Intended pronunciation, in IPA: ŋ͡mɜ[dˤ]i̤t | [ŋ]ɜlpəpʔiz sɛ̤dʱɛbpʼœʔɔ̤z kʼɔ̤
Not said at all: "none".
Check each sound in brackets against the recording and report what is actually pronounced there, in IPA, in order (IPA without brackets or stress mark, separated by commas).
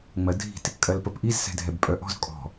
dʱ, kʼ